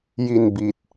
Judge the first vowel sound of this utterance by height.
high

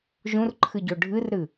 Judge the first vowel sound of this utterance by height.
high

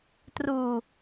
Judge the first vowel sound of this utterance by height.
high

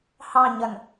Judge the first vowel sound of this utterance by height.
low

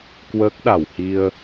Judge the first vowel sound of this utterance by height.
mid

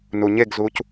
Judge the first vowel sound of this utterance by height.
high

